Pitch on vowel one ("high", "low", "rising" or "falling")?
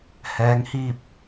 rising